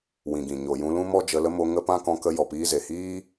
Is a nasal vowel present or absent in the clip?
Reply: present